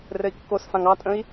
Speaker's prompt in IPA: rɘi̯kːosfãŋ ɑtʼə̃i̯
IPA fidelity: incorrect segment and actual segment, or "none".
none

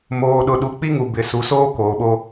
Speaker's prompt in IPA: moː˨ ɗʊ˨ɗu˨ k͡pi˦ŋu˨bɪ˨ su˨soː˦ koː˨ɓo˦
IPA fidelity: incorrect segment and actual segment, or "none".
none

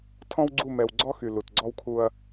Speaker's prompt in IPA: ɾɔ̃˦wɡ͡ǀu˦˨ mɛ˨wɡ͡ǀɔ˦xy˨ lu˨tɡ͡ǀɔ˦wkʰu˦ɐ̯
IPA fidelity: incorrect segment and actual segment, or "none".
ɾ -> tʰ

